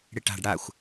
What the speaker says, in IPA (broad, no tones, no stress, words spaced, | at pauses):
ɽɪʈa̤ɖ ɽaxʷ